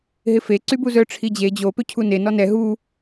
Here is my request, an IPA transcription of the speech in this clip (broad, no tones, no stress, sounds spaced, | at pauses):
ɦ ɪ f e ǀ y b u z œ ʈ͡ʂʰ i d͡ʑ e d͡ʑ o p ø cʰ u n e n ɔ n ɛ ɦ u